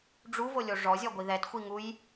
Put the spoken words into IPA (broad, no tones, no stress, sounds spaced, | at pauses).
ɖ͡ʐ u v o lʲ o ʐ ɔ zʲ ɔ ɡʷ i ð ɛ t xʷ i ŋ u j